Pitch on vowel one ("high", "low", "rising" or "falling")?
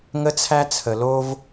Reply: high